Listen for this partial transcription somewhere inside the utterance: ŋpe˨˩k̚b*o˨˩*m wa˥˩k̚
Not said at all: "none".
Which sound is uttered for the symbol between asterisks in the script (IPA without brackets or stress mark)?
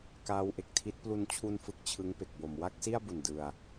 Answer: o˨˩